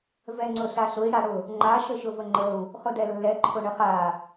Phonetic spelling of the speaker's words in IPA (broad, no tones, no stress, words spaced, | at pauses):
vɛŋ͡ǀʊɬaɬʊi̯ ɽaɽʊ | ŋ͡ǃa ʃəʃʊvəŋ͡ǃəu̯ | χʊdɛlːɛ ǃʰʊɳəχa